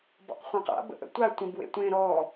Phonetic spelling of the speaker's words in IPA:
b ɔ̰ q χʷ ã q a̰ b ə̰ ʔ ə̰ tʷ a tʷ ə̃ b w ḛ tʷ ẽ ɾ ɔ

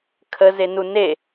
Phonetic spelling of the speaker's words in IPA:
kʰ ə z e n u n e

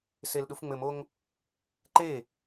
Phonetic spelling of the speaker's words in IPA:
s e l ɗ u f ŋ͡m ɘ m o ŋ | ǃ e

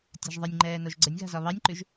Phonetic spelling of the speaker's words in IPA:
tʲ a̤ ʒ ðˤ ə nʲ ŋ͡ǃ ɛː n o ʒ ɡ͡ǀ ə nʲ ɣ a̤ z ɒ β ɑ nʲ ǃ ʉ ʒ

